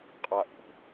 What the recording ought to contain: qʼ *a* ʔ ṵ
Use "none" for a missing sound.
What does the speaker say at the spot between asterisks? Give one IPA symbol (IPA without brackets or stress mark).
a